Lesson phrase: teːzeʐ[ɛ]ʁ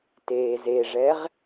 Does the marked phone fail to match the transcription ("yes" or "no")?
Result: no